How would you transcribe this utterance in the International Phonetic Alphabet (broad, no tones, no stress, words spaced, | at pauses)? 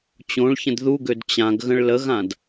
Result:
t͡ɕõɭçə̃d ðuɡød t͡ɕãɡɣə̃ɭ ləɣãd